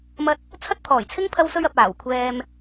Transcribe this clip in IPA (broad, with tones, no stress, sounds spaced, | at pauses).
m ɐ˥ t̚ | t͡sʰ ɐ˥ t̚ t̪ʰ ɔː˨˩ j t͡sʰ ɪ˥ ŋ pʰ ɐ˧ w s ɵ˧ ɥ ɐ˨ p̚ aː˨˩ w kʷʰ ɛː˧ m